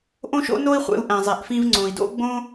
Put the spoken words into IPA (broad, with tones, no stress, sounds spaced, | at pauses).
ʔ õ˥ ʃ o̰˥ n o˥ i̯ χʷ ḛ˧ u̯ ʔ æ̃˩ zˤ e˩ ʔ f ĩ˧ v ŋ͡ǀ õ˩ i̯ d o̰˥ ɡ͡b õ˥